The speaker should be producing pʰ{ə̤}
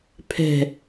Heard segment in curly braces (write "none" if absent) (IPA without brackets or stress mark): ɛ̤